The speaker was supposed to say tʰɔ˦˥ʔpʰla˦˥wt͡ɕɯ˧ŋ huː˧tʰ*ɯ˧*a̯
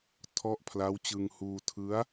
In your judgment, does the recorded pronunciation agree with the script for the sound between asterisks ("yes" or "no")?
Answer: no